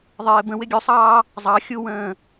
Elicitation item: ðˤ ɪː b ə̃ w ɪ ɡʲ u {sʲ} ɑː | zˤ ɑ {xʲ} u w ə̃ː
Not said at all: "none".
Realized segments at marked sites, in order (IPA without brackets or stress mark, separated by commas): sˤ, xʲ